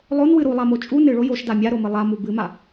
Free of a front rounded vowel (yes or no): yes